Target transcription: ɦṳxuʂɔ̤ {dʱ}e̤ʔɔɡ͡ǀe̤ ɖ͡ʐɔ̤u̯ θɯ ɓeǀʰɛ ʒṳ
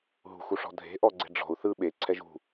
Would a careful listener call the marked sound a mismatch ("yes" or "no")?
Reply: no